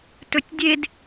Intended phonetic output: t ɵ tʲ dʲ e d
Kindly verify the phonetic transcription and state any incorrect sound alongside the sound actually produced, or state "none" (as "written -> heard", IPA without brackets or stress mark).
none